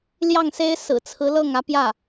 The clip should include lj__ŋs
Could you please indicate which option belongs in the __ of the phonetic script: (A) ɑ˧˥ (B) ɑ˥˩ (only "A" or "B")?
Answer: B